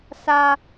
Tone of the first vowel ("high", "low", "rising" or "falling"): high